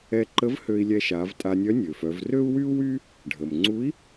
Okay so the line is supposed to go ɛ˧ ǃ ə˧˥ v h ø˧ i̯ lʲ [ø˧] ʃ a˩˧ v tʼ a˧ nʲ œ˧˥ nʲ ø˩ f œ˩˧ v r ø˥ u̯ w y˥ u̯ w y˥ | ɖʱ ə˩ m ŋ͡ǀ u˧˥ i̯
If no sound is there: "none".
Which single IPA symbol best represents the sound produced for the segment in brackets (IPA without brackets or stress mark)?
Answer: ɛ˧